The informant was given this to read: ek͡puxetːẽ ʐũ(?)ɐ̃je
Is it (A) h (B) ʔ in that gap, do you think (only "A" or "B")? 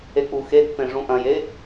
B